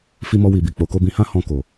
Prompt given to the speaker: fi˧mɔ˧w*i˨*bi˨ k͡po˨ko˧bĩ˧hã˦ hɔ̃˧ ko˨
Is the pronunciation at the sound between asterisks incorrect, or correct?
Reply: correct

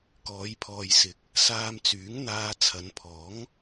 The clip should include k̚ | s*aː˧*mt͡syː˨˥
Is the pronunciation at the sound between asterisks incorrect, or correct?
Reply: correct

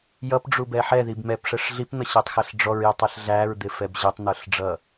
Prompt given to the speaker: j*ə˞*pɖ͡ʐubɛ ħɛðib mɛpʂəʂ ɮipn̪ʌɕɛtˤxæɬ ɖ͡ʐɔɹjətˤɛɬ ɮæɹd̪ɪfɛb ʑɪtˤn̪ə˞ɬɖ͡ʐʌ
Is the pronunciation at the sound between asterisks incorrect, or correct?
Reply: incorrect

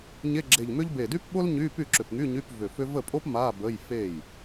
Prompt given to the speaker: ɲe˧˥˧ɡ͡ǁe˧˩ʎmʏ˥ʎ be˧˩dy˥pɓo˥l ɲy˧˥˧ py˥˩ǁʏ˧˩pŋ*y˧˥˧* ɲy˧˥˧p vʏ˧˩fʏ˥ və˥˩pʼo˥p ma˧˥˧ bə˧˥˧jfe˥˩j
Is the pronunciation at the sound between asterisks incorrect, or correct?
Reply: correct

